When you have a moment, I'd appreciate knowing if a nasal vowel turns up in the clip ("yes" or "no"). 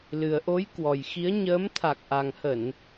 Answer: no